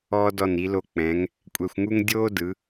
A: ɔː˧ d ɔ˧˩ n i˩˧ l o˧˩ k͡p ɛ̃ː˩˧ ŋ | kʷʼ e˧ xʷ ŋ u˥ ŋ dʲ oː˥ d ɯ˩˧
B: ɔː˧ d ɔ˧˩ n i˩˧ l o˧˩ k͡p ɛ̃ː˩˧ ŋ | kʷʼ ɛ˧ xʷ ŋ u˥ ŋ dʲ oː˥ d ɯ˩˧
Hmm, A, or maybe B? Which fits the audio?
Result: B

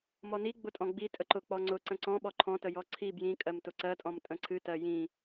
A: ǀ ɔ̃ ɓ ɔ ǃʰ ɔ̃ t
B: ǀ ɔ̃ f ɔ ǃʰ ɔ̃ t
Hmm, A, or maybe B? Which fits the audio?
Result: A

